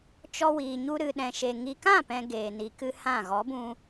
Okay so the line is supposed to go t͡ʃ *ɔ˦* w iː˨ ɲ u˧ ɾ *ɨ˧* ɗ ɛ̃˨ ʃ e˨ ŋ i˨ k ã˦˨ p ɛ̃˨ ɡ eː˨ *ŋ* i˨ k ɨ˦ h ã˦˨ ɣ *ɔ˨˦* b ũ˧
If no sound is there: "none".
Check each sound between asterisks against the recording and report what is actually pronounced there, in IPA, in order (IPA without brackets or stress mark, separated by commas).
ɔ˧, ɨ˨, n, ɔ˨˦